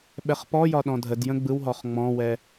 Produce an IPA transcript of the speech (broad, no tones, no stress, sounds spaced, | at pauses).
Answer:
ɓ ɛ χ p ɔ j ɒ ɗ ɔ̃ dʱ ə d j ə̃ ɡ͡b ɯ w ɦ ɔ χ ŋ͡m ɔ̃ w ɛ